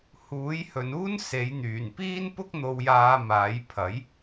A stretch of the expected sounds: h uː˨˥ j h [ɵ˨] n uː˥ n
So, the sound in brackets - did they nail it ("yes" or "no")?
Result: yes